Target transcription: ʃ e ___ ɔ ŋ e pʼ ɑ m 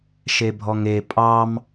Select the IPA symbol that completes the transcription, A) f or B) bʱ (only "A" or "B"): B